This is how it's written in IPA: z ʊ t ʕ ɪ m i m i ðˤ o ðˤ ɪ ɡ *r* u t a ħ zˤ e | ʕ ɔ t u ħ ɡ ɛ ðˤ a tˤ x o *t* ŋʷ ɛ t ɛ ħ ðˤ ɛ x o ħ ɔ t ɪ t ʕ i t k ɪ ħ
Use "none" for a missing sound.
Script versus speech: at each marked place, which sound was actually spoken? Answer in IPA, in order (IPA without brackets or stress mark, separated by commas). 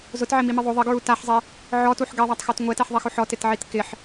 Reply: ɹ, t